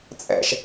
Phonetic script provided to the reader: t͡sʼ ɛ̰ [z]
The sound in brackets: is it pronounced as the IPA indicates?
no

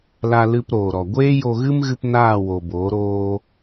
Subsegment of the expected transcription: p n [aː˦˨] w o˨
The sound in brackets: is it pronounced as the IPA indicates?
yes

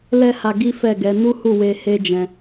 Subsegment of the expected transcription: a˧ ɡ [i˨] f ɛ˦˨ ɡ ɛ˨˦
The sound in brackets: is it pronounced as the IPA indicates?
no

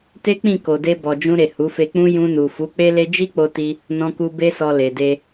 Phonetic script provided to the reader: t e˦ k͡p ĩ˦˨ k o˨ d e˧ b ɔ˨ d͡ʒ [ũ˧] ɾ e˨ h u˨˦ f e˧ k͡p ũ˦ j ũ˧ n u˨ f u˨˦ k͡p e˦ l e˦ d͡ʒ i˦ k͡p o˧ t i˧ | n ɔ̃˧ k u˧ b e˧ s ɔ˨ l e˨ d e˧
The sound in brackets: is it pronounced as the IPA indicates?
yes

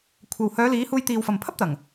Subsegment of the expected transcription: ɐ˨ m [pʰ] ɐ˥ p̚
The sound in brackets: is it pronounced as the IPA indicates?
yes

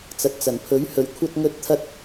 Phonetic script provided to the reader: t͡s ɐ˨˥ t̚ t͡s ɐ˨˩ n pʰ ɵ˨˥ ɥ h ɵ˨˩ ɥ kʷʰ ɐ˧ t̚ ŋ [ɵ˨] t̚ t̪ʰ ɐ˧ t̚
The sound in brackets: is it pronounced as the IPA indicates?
no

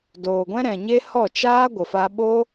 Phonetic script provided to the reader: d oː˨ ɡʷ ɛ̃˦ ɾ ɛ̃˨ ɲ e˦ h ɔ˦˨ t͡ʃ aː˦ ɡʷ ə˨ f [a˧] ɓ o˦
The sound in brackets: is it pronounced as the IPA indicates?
yes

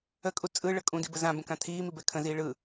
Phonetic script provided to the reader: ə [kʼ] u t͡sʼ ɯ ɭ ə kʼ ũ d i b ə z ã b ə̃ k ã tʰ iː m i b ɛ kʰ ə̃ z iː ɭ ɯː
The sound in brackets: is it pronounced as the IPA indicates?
yes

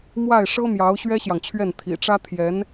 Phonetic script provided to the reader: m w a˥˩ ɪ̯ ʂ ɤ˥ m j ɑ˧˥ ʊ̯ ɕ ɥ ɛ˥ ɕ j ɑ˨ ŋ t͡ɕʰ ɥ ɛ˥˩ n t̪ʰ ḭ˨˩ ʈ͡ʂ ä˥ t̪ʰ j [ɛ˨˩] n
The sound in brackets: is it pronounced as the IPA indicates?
no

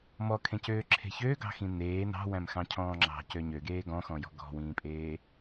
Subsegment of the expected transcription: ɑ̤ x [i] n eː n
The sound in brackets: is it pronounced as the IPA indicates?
no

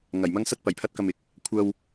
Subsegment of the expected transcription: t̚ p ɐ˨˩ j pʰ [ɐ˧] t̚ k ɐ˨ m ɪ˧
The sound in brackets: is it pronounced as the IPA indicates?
yes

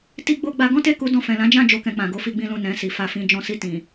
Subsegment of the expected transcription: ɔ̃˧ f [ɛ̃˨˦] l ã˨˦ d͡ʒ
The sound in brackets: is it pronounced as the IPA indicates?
no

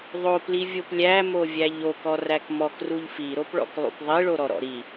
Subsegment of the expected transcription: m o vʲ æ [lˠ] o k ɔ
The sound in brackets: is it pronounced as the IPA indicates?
no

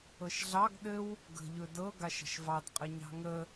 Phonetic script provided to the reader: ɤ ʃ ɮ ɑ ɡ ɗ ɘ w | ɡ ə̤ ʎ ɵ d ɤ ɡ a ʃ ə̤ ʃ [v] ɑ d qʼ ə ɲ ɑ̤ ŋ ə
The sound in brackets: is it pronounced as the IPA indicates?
yes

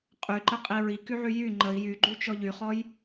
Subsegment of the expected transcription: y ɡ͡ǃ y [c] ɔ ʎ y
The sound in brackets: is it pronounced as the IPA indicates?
no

